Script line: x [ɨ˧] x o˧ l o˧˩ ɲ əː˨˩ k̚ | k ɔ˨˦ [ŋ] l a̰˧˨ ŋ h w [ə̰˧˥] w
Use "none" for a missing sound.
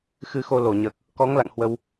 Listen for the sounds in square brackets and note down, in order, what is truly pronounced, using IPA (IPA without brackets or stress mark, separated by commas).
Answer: ɨ˧, ŋ, ə˧